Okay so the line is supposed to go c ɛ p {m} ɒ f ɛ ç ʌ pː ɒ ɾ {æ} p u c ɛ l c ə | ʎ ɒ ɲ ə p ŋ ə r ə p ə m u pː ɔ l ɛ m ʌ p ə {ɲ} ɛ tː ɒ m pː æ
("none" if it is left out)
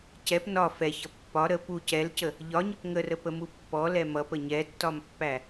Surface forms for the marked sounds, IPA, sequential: n, ə, ɲ

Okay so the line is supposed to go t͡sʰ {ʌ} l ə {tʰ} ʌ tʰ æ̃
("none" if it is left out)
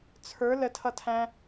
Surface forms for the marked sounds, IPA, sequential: ə˞, tʰ

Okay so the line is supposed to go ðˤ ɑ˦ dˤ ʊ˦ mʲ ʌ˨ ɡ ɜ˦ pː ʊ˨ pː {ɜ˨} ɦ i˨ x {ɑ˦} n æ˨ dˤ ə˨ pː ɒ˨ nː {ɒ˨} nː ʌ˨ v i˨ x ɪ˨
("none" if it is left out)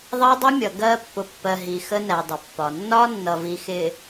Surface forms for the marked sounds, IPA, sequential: ɜ˨, ə˦, ɒ˦

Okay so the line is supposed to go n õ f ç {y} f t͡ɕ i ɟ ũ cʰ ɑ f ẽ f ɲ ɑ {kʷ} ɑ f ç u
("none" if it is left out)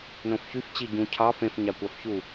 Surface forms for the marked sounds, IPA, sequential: y, kʷ

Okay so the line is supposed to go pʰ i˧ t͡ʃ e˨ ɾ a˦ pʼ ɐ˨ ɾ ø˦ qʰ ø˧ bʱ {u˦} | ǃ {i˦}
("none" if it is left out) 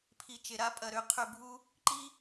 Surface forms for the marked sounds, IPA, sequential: u˦, i˦

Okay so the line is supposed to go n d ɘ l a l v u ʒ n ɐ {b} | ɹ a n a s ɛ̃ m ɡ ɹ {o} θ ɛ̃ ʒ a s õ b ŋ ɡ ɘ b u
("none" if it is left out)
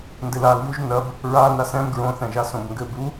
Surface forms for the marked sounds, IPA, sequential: b, õ

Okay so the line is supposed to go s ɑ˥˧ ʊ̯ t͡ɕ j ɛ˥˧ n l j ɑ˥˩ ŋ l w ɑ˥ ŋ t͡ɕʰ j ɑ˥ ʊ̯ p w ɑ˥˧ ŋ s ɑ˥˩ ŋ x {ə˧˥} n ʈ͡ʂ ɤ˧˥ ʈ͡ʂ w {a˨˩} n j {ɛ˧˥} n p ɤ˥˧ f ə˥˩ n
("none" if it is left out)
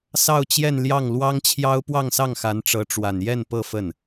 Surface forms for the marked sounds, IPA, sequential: a˧˥, a˨˩, ɛ˥˧

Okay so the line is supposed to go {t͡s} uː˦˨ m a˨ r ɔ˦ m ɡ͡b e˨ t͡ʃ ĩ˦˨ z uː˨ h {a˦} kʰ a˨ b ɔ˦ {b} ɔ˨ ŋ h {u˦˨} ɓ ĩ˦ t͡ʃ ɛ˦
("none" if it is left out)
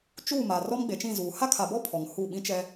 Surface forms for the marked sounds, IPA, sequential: t͡ʃ, a˦, pʰ, u˦˨

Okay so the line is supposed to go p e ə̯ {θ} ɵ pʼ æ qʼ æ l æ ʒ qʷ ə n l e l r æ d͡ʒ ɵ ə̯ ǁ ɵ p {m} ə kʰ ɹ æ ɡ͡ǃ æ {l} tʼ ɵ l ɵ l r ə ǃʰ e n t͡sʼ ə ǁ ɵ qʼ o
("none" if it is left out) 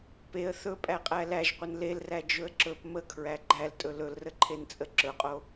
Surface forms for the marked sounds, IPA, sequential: θ, m, l

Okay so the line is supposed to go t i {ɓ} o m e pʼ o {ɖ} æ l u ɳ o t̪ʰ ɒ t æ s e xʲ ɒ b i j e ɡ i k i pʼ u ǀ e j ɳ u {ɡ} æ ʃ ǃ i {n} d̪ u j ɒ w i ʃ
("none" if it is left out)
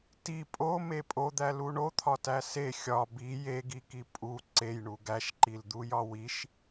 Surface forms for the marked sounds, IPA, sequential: pʼ, d̪, ɡ, l

